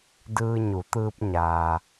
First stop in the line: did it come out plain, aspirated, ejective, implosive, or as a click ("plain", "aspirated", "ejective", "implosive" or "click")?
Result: plain